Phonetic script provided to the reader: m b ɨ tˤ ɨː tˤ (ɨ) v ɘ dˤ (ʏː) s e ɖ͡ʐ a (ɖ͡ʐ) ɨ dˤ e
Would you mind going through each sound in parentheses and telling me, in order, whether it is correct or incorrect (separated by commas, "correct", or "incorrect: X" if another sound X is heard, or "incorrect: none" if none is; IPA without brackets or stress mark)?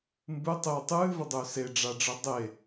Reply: incorrect: ɨː, correct, correct